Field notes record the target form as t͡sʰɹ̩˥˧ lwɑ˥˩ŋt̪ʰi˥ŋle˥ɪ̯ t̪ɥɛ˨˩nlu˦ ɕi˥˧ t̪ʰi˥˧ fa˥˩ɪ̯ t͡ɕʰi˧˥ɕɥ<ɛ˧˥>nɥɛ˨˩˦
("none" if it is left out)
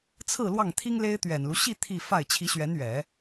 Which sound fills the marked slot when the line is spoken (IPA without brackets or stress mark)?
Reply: ɛ˧˥